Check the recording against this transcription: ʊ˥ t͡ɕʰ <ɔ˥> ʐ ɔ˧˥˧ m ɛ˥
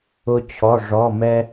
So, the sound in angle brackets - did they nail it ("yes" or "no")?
no